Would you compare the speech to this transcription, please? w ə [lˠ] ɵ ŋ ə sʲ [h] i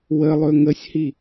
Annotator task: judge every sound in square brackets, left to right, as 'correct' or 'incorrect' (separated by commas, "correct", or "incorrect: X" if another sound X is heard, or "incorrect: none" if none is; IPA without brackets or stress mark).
correct, correct